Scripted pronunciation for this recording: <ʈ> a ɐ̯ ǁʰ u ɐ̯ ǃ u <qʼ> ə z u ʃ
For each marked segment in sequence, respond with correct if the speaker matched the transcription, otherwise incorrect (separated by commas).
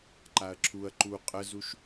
incorrect, correct